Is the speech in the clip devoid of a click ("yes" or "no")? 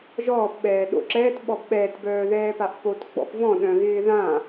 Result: no